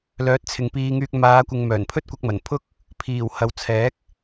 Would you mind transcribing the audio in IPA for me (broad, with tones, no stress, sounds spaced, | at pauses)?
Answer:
l œː˨˥ t̚ t͡sʰ ɪ˨ ŋ p iː˧ ŋ yː˧ k̚ m aː˨˧ kʷ ɪ˨ ŋ m œː˨˩ n pʰ ɵ˥ t̚ kʷ ɐ˧ k̚ m ɐ˨˩ n pʰ ʊ˥ k̚ | pʰ iː˨˩ w h ɐ˨ w t͡sʰ ɛː˨˥ k̚